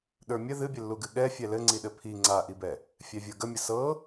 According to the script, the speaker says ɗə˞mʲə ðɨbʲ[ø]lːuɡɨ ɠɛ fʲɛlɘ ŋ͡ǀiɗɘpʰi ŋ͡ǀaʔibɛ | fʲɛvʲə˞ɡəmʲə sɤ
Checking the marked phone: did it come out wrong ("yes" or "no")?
yes